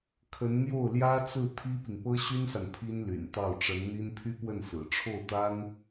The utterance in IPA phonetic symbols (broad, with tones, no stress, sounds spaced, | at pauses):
kʰ ə˧˥ n n̪ j o˥˩ ʊ̯ l j ä˥ t͡s ɹ̩˥˩ t̪ʰ i˥ p i˨ ŋ p ɤ˥ ɕ y˥ n s a˨ n pʰ i˥ n l y̰˨˩ n t̪ ɑ˥˩ ʊ̯ ʈ͡ʂ ə˧˥ n n̪ i˥ n pʰ y˥ p w ə˥˩ n s ɹ̩˨˩ ʈ͡ʂʰ o˥˩ ʊ̯ t̪ a˥ n